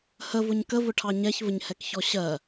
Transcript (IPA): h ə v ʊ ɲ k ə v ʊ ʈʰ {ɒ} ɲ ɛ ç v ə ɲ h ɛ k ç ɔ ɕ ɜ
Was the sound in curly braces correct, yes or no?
no